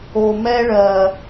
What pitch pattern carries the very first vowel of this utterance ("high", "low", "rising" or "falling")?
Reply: low